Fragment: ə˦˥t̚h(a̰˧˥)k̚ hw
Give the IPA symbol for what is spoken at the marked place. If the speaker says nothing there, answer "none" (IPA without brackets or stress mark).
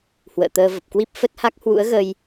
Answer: a˦˥